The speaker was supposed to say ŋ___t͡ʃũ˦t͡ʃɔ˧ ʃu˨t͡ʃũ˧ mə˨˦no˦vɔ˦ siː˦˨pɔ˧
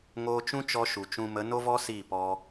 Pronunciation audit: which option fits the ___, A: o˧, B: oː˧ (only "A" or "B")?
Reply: B